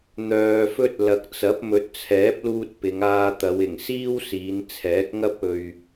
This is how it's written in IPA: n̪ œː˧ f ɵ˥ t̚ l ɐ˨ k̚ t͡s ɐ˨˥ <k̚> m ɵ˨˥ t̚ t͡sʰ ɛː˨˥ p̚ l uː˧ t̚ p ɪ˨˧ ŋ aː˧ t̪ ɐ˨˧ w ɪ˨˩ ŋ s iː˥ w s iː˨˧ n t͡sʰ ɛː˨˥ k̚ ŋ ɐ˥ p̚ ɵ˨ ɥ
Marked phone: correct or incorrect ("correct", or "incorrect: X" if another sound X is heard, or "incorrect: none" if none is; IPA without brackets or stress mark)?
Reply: incorrect: p̚